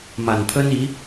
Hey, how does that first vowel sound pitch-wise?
low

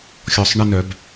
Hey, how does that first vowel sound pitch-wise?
low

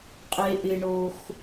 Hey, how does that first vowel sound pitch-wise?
low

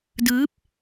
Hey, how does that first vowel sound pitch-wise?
rising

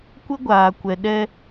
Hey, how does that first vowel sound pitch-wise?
high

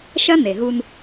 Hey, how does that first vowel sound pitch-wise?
high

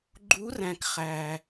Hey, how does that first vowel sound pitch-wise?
rising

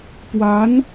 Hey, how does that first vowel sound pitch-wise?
rising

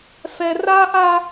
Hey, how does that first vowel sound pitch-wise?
high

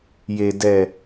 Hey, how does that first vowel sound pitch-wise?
low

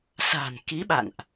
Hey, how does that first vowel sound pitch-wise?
low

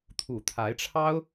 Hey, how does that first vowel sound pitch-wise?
low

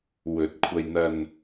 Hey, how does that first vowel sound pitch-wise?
rising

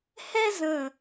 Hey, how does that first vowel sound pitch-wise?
high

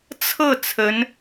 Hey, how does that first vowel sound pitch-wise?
falling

